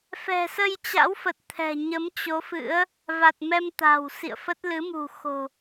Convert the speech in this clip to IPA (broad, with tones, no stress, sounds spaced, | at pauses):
f ɛ̤˨˩ s ə˧ j t͡ɕ a̰˧˥ w f ə˨˩ t̚ t̪ʰ ɛ̤˨˩ ɲ ə˨˦ m t͡ɕ o˨˦ f ɨ̰˧˥ ə̯ | v a˨˩ t̚ m ɛ˧ m t̪ a̤˨˩ w s ḭ˧˨ ə̯ f ə˦˥ t̚ l ɨ˨˦ m ṳ˨˩ x o̤˨˩